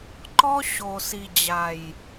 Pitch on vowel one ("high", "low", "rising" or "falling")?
high